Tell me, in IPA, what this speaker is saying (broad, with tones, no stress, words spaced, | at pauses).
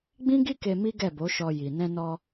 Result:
ɡ͡bĩ˦ɡi˦ke˧ mi˦ɡɛ˦˨bo˨˦ʃɔ˧ ji˨nɛ̃˧nɔ˧